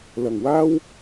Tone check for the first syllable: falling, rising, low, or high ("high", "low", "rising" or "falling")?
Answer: low